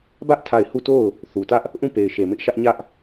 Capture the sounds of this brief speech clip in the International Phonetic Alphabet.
b ä˦ ʔ tʰ a˦˨ ɪ̯ h u˦˨ t o˦˨ ʊ̯ | θ u˨ t ä˦ ʔ | ʔ ũ˦˨ p e˨ ɪ̯ ʃ e˨ m ɪ˦ ʔ ʃ ä˦ ʔ ɲ ä˦ ʔ

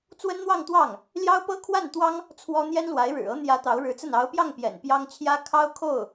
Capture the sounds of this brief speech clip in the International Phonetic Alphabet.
t͡s w ə˥ n n̪ w ɑ˥˧ ŋ t̪ w ɑ˥˩ ŋ | l j ɑ˥ ʊ̯ p ɤ˥ kʰ w a˥˩ n t̪ w ɑ˥ ŋ | t͡sʰ w ɔ˥ n̪ j ɛ˥ n l w a˧˥ ɪ̯ ɻ ɻ̩˨˩ ɤ˥ n̪ j ä˧˥ t̪ ɑ˧˥ ʊ̯ ɻ ɻ̩˧˥ t͡s ə˥˩ n ɑ˧˥ ʊ̯ p j ɑ˥˩ ŋ p j ɛ̰˨˩ n p j ɑ˥ ŋ t͡ɕʰ j ä˥ kʰ ɑ˥ ʊ̯ kʰ o˥˩ ʊ̯

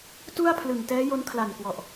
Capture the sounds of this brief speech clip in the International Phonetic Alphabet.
t u˥˩ a̯ pʰ l ɯ˨˩ ŋ t ɛː˦˥ j o˦˥ n kʰ l a˨˩ n k w ɔ˨˩ ʔ

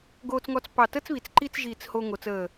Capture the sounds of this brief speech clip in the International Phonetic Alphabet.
ɡ oː˧ t͡s ŋ ɔ˧ t͡s p ɑ˧˩ t əː˥ t͡s β i˩˧ t͡s ǃ i˥˧ t͡s ʒ iː˧˩ t͡s h o˧ ŋ o˩˧ t͡s əː˧˩

